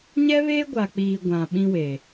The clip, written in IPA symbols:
ɲɛ˦βeː˦ɡʷa˨k͡piː˨ ɡʷã˨ɓĩ˦we˨

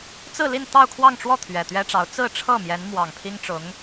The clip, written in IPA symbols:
t͡sɹ̩˥˧li˥˧n t̪ɑ˥˧ʊ̯kʰwɑ˥˧ŋʈ͡ʂwɔ˥˩ t̪ʰɥɛ˨˩t̪ɥɛ˥ʈ͡ʂɑ˧˥ʊ̯ t͡sɹ̩˥˧ʈ͡ʂʰɤ˥˩ mjɛ˧˥nmwɑ˨˩ŋpʰi˥ŋʈ͡ʂʊ˧˥ŋ

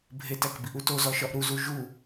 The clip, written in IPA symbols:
bʱetækbiʔu tozɒʃɒʔ ɾuzu ʒu

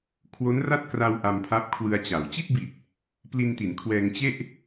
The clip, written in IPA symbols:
kʰwo˦˥nra˥˩t̚kra˧w ʔa˧mpʰa˦˥p̚kʰwɯ˧a̯t͡ɕa˩˦w t͡ɕi˥˩t̚bi˨˩t̚ | pli˧nti˩˦nkʰwɛː˧ŋ t͡ɕe˥˩ʔ

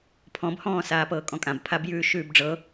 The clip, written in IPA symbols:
pʰɔ̃bhɔ̃ːsaːpɤː kʼɔ̃kʼãbpʰabjʉː ʃʉːbɖ͡ʐɤ

